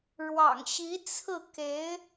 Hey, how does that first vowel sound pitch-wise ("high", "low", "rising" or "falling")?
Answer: low